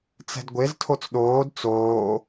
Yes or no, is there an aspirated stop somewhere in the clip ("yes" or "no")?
yes